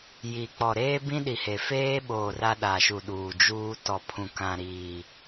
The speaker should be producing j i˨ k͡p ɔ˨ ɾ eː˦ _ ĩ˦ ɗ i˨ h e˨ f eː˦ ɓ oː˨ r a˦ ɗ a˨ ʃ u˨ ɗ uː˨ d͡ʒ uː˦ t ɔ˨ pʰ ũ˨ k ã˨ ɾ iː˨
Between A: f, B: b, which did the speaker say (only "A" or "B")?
B